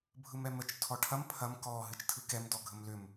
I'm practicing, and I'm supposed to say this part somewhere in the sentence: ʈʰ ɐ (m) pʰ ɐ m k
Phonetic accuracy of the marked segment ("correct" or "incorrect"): correct